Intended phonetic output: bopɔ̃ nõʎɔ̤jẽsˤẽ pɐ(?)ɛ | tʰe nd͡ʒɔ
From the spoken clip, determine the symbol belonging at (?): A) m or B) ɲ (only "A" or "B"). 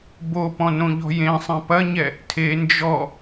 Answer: B